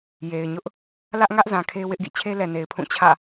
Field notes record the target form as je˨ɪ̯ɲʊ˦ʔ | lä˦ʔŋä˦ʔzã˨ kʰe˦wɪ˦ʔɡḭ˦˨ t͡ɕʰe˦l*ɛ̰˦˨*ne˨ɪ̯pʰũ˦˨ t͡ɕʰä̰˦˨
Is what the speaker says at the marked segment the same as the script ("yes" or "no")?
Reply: no